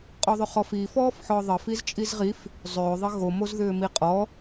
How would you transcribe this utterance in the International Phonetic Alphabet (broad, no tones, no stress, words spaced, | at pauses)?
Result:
qʼɔðˤʏχɔfi fɔːfħɔːðˤə fizt͡ʃʼizʁif | zˤʏː ðˤəɣo mozðʏːmiqʼɔ